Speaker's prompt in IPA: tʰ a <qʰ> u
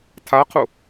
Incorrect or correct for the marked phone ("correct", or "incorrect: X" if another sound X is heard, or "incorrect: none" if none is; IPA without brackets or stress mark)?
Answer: correct